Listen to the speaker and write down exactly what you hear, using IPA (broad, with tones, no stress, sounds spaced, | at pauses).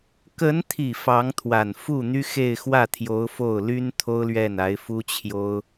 k ə˧˥ n t̪ʰ i˨˩ f ɑ˧˥ ŋ t̪ʰ w a˨˩ n f u˥˩ n̪ y˥ x e˥˧ ɪ̯ x w ä˥˩ t̪ʰ j o˧˥ ʊ̯ f o˥˩ ʊ̯ l y˥ n t̪ʰ o˥ ʊ̯ l ɥ ɛ˥˩ n a˧˥ ɪ̯ f u˥ t͡ɕʰ j o˥ ʊ̯